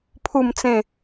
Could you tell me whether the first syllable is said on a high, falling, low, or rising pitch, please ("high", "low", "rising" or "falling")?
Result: falling